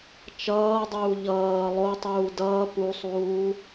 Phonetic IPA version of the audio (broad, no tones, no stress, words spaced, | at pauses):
t͡ʃʌːdˤuː ʎʌː lˠotˤuː dʌː pusˤuː